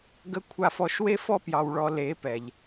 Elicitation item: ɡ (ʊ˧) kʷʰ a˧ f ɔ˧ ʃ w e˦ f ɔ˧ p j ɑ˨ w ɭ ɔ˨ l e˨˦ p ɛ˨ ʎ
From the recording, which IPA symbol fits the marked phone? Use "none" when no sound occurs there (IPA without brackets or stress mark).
ə˧